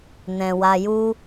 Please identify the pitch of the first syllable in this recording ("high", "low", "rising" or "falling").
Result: low